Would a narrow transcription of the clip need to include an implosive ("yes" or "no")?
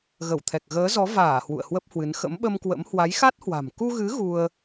yes